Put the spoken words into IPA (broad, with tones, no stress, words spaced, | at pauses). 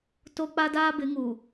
to˦k͡pa˦daː˦ bɪ˨˦ŋu˨